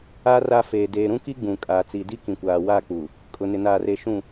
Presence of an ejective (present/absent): present